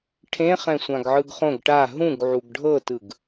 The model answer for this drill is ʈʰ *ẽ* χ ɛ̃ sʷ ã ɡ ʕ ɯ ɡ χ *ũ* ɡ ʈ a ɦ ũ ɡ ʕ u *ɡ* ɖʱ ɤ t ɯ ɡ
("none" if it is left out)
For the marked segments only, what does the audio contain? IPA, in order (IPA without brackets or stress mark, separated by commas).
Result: ẽ, õ, ɡ